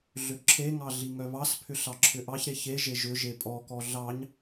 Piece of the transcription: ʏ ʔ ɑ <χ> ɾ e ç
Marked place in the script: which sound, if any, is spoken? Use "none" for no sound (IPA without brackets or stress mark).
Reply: ç